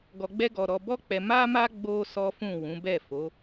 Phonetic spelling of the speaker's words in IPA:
ɡ ɔ˧ ɡ͡b ɛ˦ ɡ ɔ˧ ɾ ɔ˧ b ɔ˦ k͡p ɛ˧ m a˦ m a˦ ɡ͡b o˦ s ɔ˦ f ũ˦˨ w ũ˨˦ b ɛ˦˨ f o˨˦

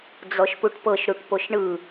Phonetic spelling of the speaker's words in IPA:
d͡z ɔ ʃ p u ʈ p ɤ ʃ ɾ u ʈ p o ʃ ɳ ɯ

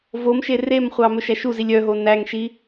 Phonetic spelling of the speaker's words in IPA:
v o m ʃ e r e m χʷ ɑ m ɵ ʃ æ ʃ u z i lʲ œ ɦ o n æ ŋ ʃ i

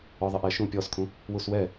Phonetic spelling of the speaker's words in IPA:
ɔ ðˤ ɪ ʔ ɛ ʃ ũ pʲ ɔ s kʰ ũ | w u s w ɛ

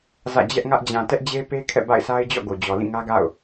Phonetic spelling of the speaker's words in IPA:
z ä̰˦˨ d͡ʑ ɛ˦ ʔ ŋ ä˦ ʔ d͡ʑ ã˨ t ɛ˦ ʔ d͡ʑ e˦ p e˦ kʰ ɛ̰˦˨ b a̰˦˨ ɪ̯ sʰ a˦ ɪ̯ d͡ʑ ɔ̰˦˨ ɡ o˨ d͡ʑ ɔ˨ l ĩ˦˨ ŋ ä˦ ɡ a̰˦˨ ʊ̯

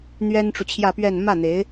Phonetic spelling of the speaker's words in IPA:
n̪ ɥ ɛ˥ n ʈ͡ʂ u˨ t͡ɕʰ j ä˥˧ p ɥ ɛ˥˧ n m ä˥˩ n̪ e˧˥ ɪ̯

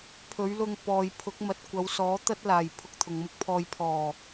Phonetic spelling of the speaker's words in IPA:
pʰ ɵ˨˥ ɥ l ʊ˧ ŋ p ɔː˨ j pʰ ʊ˨˥ k̚ m ɐ˨ t̚ kʷ ɐ˨˧ w s ɔː˨˥ t̪ ɐ˥ t̚ l aː˨˩ j pʰ ʊ˧ k̚ t̪ʰ ʊ˨ ŋ m ʊ˥ k̚ pʰ ɔː˧ j pʰ ɔː˨˩

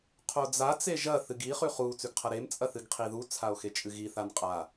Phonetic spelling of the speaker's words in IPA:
qʰ o d͡z a t͡s e ʒ ɐ θ ɨ ɡ i χ ʉ χ u t͡s ʉ ɡ qʰ ɐ ɾ e m t͡sʼ ɐ θ ɨ ɡ qʰ i ð u t͡sʰ a o̯ x e t͡ʃʼ ɨ ɣ i θ a n qʼ a

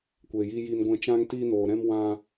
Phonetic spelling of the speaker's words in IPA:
kʷ e˧ j i˦ j i˦ n ɡʷ ɛ̃˦ t͡ʃ ã˦ ŋ t iː˦ n oː˧ ɾ ɛ̃˦ m w ã˦

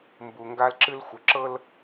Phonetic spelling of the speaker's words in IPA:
m b u˨ ŋ ɡ a˦ l ǁ ɨ˦ l xʷ ə˨ ǁ ɤ˦ l

